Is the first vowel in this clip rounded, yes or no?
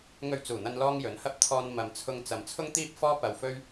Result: yes